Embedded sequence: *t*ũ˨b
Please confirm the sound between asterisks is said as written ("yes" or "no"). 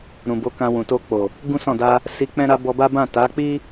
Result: no